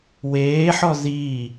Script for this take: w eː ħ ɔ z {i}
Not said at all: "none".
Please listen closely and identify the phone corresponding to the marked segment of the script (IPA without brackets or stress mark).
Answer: iː